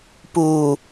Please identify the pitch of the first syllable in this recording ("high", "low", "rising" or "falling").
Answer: low